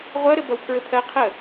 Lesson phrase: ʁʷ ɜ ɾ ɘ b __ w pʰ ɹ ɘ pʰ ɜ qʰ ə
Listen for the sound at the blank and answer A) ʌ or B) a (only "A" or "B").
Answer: A